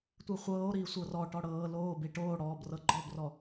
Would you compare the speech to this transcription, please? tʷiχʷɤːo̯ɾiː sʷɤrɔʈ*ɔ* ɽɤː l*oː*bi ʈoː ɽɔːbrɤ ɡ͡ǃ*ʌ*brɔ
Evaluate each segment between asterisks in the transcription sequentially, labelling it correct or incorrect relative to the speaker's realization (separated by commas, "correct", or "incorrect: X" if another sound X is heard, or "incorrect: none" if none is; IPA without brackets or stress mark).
correct, correct, incorrect: ɔ